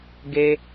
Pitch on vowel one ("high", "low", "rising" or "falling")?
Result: high